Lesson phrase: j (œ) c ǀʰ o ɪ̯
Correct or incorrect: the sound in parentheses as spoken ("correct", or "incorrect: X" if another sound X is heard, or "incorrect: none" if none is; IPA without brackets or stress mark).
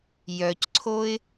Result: correct